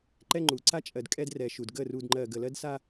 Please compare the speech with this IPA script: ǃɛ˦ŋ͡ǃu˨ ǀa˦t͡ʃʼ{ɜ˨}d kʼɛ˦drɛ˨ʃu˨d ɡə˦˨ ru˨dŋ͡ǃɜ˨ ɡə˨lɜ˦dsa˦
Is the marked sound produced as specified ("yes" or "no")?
yes